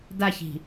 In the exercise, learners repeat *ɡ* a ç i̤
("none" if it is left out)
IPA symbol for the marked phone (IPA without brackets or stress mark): d